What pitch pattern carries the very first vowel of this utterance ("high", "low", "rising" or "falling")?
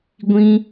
high